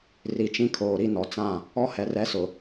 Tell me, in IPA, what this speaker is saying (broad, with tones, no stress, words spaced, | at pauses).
ri˨t͡ʃĩ˦kʰoː˨ɾi˦ nɔ˨t͡sã˦˨ | ɔ˦ hɛ˨rɛ˦sʊ˨